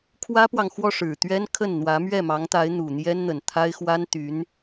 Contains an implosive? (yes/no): no